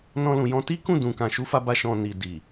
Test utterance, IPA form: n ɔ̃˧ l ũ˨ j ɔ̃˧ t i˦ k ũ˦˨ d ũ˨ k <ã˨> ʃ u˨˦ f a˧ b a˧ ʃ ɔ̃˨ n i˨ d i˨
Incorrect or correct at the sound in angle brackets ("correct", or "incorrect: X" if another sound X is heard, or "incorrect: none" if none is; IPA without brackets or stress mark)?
correct